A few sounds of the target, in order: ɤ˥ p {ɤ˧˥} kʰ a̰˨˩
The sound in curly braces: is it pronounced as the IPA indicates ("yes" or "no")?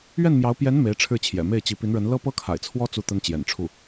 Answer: no